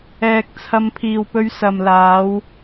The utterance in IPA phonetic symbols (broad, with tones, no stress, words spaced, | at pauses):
ɛː˧k̚t͡sʰɐ˧m pʰiː˨wpɵ˧ɥsɐ˨mlaː˨˧w